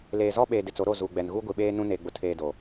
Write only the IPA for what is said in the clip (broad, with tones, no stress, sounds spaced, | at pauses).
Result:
l eː˨ z ɔ˦ ɓ eː˨ d ɪ˨ t͡s o˨˦ ɾ o˦˨ z u˨ ɡ͡b ɛ˨ n ɣ u˦ ɡʷ i˨ ɓ eː˦ n ũ˦ n e˨ ɡ͡b ʊ˨ tʰ eː˨ d o˨